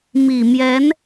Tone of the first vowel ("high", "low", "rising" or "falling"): low